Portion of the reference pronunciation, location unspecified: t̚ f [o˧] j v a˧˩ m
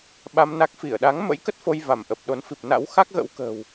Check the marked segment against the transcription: correct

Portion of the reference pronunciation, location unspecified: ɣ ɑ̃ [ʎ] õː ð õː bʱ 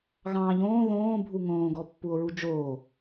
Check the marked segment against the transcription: correct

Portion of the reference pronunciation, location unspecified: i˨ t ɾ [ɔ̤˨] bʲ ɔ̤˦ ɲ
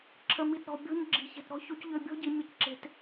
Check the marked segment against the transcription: correct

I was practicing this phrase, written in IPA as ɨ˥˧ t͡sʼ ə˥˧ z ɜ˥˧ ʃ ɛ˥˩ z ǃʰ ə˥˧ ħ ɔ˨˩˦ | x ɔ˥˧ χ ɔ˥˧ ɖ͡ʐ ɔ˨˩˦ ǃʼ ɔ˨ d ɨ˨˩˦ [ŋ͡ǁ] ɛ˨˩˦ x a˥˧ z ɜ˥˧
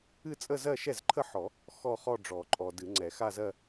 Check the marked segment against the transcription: incorrect: ŋ͡ǀ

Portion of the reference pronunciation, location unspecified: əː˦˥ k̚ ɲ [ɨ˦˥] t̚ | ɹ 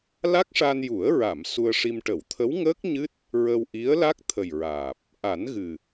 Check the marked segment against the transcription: correct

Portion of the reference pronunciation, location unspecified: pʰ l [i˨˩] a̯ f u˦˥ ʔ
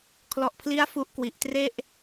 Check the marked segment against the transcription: incorrect: i˦˥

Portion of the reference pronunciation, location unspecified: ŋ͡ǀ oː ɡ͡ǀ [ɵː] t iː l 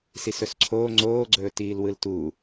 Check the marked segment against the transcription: correct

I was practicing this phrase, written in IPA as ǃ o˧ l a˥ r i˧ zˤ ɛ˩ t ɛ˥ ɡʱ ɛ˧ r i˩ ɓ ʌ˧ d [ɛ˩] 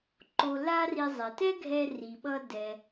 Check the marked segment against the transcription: correct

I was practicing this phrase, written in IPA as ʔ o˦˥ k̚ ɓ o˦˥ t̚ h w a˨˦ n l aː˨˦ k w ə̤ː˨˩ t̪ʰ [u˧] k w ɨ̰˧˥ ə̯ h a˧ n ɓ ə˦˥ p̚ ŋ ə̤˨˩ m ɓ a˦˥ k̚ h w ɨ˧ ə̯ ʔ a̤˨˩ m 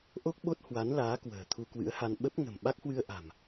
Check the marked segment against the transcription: correct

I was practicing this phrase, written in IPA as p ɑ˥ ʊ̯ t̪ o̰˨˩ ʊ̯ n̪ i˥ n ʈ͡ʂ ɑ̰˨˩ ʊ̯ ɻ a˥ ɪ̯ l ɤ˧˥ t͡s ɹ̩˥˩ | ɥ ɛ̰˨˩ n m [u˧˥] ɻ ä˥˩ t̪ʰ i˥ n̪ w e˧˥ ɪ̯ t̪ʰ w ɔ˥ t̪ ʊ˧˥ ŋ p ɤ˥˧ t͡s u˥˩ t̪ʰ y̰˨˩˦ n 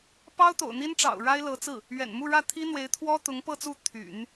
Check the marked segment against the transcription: incorrect: u˥˧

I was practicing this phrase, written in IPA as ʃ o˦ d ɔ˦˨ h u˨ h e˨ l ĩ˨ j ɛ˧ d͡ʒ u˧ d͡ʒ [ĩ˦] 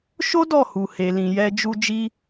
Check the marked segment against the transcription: incorrect: i˦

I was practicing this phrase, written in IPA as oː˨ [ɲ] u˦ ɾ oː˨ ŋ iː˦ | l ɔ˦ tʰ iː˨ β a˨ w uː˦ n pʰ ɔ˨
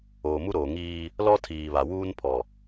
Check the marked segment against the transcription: incorrect: m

